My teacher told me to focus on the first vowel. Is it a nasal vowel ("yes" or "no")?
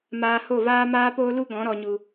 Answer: no